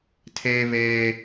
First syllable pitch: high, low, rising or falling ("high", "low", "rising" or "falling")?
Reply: high